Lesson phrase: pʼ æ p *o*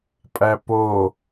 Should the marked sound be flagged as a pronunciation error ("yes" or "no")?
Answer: no